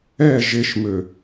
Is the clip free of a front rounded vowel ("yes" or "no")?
no